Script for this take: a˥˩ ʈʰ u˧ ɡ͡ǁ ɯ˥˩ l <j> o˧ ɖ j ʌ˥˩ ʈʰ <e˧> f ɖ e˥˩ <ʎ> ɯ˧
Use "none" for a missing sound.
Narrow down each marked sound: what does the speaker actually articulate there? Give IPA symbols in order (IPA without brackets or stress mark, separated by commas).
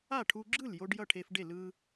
j, e˧, l